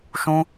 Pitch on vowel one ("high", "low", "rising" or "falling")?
high